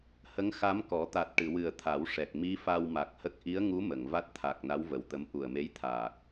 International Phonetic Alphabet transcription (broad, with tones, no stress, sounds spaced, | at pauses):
h ə˧˥ ŋ x a˧˥ m k ɔ˨˩˦ t̪ a˨˩ t̚ ʈ ɨ˨˩˨ w ɨ˨˩ ə̯ t̪ʰ a˨˩˦ w ʂ ɛ˨˩ k̚ m i˧˥ f a˧ w m a˨˩ k̚ h ə˦˥ k̚ ʔ i˧˥ ə̯ ŋ u˧˥ m ə˨˩˨ ŋ v a˦˥ t̚ t̪ʰ a˨˩ k̚ n a˧˥ w v ə˨˩ w t̪ ə˧˥ m ʔ u˨˩ ə̯ m e˧˥ j t̪ʰ aː˨˩ k̚